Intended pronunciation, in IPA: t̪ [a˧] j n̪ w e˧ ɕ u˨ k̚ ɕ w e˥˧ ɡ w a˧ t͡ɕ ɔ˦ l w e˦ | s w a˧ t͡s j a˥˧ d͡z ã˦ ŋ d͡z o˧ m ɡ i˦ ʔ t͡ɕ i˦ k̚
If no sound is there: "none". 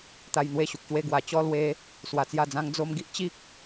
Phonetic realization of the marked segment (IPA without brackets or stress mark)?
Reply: a˧